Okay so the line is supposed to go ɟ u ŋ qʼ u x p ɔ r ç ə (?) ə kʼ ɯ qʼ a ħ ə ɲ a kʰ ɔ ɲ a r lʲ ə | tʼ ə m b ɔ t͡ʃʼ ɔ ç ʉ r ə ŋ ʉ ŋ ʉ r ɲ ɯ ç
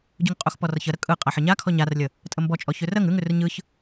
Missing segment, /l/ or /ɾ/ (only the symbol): ɾ